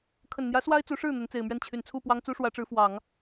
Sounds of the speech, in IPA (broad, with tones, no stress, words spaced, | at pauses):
kʰə˨˩nn̪jä˧˥ swa˥ɪ̯t͡su˧˥ʂɻ̩˥˩ n̪ə˧˥nt͡se˨˩ɪ̯mɥɛ˥˩n t͡ɕʰy˨˩nt͡sʰu˥˩ pwɑ˥ŋt͡su˥ʂwä˧˥ʈ͡ʂɻ̩˧˥ fwɑ˨˩˦ŋ